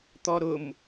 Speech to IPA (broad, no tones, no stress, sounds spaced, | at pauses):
t̪ ɔ ɾ ʊ m